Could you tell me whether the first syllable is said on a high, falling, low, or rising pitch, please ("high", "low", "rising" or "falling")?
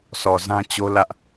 low